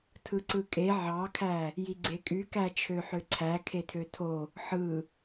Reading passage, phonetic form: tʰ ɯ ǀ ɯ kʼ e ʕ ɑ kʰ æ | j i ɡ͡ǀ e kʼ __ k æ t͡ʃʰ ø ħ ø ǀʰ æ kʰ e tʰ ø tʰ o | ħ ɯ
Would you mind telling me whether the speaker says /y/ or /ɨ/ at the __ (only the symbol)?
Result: y